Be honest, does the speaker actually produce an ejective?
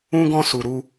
no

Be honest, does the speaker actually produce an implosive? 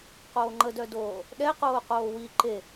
yes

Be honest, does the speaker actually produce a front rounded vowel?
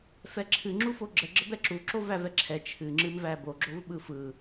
no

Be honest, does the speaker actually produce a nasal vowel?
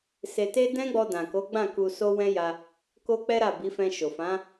yes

